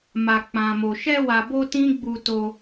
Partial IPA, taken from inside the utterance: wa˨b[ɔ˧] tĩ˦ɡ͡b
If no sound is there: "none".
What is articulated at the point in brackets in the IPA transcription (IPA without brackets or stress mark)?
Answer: o˧